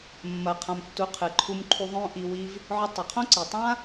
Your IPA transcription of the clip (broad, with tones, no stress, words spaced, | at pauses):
mːɐ˨qʰã˨m tːu˨˦qʰɨ˨ǃʰu˧mǃʰu˧ ðˤõ˦ʔi˧ wi˧v | ʕɵ˧tˤɵ˨qʰõ˦ǀi˨ tˤã˦